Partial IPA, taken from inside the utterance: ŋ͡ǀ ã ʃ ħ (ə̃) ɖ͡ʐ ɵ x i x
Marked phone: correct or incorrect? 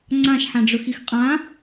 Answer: incorrect